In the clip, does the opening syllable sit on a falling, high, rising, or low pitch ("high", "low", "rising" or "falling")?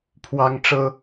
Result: high